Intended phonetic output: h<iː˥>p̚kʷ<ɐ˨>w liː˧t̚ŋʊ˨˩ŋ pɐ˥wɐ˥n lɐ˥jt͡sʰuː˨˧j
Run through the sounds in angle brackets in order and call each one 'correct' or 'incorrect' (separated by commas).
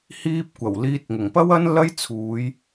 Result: correct, incorrect